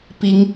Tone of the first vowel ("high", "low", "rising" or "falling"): rising